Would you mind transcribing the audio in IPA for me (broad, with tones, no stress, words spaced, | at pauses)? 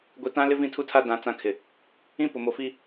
ɡʷi˨tã˦ lɪ˦vĩ˦˨tʰu˦tʰa˦ dã˦t͡sã˦kʰɪ˨ | ĩ˦pʊ˨mo˨fi˦